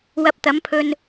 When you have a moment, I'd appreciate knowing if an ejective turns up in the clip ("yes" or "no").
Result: no